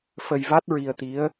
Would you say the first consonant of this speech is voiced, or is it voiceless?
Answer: voiceless